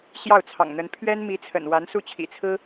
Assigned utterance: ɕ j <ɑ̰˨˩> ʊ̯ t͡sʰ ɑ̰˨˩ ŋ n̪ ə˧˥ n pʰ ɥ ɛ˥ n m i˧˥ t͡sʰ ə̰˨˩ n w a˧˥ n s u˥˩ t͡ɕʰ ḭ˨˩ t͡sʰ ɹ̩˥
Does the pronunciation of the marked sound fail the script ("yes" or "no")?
yes